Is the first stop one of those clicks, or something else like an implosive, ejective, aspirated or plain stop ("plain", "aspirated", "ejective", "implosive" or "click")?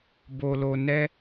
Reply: plain